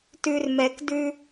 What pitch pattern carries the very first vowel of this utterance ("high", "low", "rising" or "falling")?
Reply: low